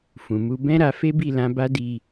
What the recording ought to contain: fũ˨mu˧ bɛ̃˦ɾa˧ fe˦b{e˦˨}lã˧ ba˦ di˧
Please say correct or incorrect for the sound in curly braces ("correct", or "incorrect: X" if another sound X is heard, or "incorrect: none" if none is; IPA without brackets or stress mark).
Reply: incorrect: i˦˨